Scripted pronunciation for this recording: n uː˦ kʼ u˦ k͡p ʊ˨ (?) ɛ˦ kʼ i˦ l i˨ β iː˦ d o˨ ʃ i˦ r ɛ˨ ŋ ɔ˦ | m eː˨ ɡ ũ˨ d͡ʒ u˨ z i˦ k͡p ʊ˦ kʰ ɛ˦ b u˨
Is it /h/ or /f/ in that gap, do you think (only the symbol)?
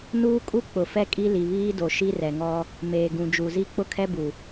f